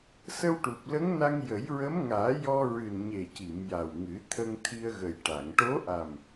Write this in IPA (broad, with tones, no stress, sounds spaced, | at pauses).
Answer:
s ə˧ w ʈ u˨˩ p̚ l ə˧˥ ŋ n a˧ ŋ j ə˨˩˦ j ɹ ə˧˥ m ŋ aː˨˩˦ j ɔ˧ ɹ ɨ˨˩ n ɲ e˨˩ c i˨˩˨ m j a˨˩ w ŋ ɨ˨˩˦ t̪ʰ ə˧ ŋ t̪ʰ i˧ ə̯ ɣ ə˨˩ j ʈ a˨˩˨ ŋ ʈ o˧˥ ʔ a˨˩ m